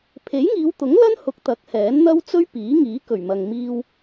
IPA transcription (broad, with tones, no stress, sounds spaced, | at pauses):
pʰ e˨˥ j ŋ iː˨˧ w t̪ ʊ˨˥ ŋ l ɐ˥ n h ʊ˨˥ k̚ t̪ ɐ˨˥ k̚ h ɛː˨˥ n n̪ ɐ˥ w t͡s ɵ˥ ɥ p iː˨˥ ŋ iː˨˥ k ɵ˨˩ ɥ m ɐ˨ ŋ m iː˧ w